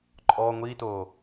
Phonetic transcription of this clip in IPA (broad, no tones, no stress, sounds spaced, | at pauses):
ǃʼ ɔ ŋʷ i t oː